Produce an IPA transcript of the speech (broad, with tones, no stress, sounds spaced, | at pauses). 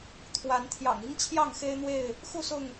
t̪ʰ w a˨˦ n t̪ʰ j ɑ̰˨˩ ŋ i˦ ŋ t͡ɕʰ j ɑ˥˨ ŋ x e˦ ɪ̯ n̪ w e˥˨ ɪ̯ | x u˥˨ s ʊ˥˨ ŋ